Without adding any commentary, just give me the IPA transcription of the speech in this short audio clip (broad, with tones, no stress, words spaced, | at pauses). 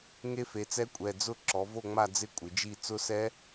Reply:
ŋe˦˥fe˩˧t͡sɛ˦˥kʷʼɛ˩˧˩ d͡zʊ˥˨ ǁɔ˩˧vo˥˨ŋ͡ma˥˨d͡zɪ˥˨ kʷʼɪ˩˧d͡ʒi˥˨ t͡sʊ˦˥sɛ˦˥